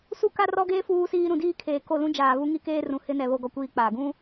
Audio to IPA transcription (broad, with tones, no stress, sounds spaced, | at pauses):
s u˦ k a˦ r ɔ˦ ɡ eː˦ f uː˦ s iː˦ ɾ ũ˨ d iː˦ kʰ eː˨ k o˦˨ l ũ˦ d͡ʒ aː˨ β u˦ ŋ i˦ k eː˦ r ũ˨ h ɪ˦ n ɛ˨ β o˦ ɡ ɔ˦ kʷ iː˦ k͡p aː˨ ɡ ũ˦